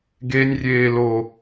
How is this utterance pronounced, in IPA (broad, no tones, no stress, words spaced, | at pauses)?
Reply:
ɡenʲrʲeːlo